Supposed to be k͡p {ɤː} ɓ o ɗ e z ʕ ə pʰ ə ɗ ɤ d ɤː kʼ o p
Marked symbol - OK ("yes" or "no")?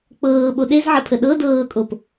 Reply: yes